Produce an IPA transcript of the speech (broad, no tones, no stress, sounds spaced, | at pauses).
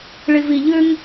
ɭ i v i ʎ ʏ ŋ